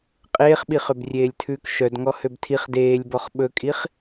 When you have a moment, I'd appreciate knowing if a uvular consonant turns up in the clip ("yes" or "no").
yes